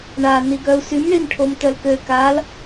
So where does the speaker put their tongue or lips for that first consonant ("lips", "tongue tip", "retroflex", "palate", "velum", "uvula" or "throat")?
retroflex